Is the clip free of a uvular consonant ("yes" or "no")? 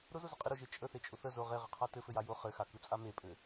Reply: no